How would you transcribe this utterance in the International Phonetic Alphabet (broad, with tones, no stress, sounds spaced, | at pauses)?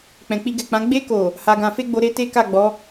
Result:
k͡p ɛ̃˨ k͡p i˧ ɡ ɛ˨ k͡p ã˨˦ ɡ͡b e˧ k o˨ | h a˧ ɡ ã˧ f e˦ ɡ͡b o˧ ɾ e˦ t e˦ k a˦˨ ɡ͡b ɔ˨˦